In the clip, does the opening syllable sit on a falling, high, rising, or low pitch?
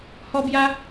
high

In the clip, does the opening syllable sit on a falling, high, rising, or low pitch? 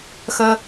high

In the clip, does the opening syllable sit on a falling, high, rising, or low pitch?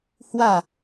falling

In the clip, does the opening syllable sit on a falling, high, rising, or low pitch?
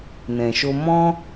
low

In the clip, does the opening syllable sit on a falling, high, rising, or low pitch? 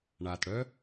low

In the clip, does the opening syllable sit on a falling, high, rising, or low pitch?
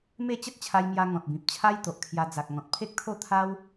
falling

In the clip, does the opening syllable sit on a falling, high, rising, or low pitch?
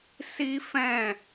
high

